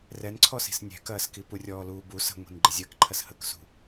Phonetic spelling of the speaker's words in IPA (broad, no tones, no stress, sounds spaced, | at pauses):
r ɛ n ǀʰ ɔ s i̤ s nʲ ɛ̤ k ɐː s k i p u rʲ ɔː l uː b u s ə̤ ŋʷ i̤ n ɡ͡ǃ ə zʲ əː k ǃʰ ɐ s h ə k s ṳ